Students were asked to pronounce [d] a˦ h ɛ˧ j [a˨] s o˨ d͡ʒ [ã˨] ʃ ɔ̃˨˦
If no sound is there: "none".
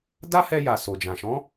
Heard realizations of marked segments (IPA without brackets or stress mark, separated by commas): d, a˨, ã˨